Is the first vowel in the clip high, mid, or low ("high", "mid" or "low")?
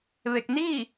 mid